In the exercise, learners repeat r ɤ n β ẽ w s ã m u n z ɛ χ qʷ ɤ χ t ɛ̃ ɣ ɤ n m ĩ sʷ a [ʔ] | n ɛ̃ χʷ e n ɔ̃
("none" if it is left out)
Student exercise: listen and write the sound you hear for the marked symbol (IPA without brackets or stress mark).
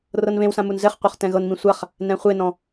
χ